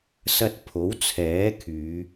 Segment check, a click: absent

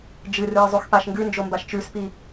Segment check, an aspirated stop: absent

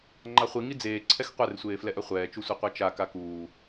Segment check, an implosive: absent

